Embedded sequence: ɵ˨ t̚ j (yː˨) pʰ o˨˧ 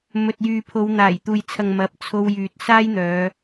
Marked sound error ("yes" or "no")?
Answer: no